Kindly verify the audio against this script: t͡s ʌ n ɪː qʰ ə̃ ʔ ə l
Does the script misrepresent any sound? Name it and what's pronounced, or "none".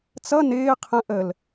none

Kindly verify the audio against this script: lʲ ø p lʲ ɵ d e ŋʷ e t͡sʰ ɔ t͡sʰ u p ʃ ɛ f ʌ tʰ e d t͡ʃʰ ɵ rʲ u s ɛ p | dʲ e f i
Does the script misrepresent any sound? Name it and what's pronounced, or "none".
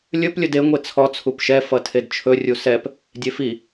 ø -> ɵ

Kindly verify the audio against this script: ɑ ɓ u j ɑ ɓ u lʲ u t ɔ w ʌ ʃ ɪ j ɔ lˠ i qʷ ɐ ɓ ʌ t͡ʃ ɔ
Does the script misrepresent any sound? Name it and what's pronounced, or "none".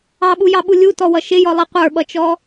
ɐ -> ə˞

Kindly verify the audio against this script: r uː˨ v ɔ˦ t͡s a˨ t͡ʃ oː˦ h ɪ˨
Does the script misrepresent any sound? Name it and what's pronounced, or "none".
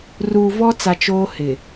none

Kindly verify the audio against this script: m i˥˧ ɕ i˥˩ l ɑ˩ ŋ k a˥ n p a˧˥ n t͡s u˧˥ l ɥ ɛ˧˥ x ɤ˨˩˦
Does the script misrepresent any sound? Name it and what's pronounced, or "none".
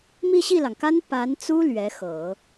u˧˥ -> u˥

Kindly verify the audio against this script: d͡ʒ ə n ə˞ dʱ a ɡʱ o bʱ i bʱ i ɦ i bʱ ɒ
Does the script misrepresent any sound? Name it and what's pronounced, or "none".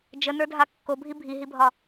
ɡʱ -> kː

